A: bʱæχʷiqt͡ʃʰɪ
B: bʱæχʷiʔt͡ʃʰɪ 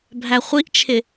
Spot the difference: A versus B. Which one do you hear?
B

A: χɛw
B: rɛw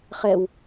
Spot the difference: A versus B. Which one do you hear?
A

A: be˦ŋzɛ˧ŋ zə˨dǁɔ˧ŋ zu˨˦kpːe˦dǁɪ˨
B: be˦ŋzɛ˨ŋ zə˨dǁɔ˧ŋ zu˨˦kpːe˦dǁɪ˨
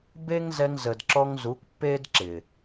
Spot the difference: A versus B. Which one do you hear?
A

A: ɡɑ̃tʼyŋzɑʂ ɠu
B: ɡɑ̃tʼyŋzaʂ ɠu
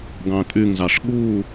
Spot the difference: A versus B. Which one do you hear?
A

